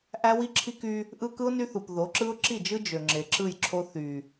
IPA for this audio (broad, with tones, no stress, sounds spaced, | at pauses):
ʔ æ˦ w i˦ ǁʰ i˦ k y˦ | ʔ ɯ˦ k ɯ˦ ʊ̯ n y˦ θ u˨ p ð o˨˦ ǁ ɯ˦ ʊ̯ ǁ i˦˨ d͡ʒ ɯ˦ d͡ʒ ø˨ ŋ͡ǁ e˨ ǁ ɯ˦˨ j ǁʰ o˦ θ y˨